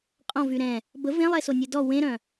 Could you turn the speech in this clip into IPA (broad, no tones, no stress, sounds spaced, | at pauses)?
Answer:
qʼ ɔ̃ v y ɾ ɛ̃ | b ə v ẽ lˠ ɛ s o nʲ e d ɔ w ẽ ɾ œ̃